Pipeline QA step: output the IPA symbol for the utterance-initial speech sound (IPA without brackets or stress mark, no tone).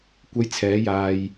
kʷ